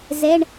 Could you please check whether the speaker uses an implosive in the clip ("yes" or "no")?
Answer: no